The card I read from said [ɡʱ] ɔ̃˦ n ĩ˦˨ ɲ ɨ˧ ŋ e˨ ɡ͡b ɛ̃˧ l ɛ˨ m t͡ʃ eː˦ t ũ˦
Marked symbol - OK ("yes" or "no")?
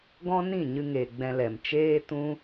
no